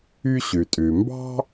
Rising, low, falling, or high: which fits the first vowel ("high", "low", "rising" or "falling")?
high